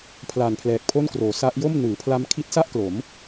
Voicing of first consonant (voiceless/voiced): voiceless